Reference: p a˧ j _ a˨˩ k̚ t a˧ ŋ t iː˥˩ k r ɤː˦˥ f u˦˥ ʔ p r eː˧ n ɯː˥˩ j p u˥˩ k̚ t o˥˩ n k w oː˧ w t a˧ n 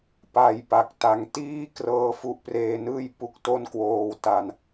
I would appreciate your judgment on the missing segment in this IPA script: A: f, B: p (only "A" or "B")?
B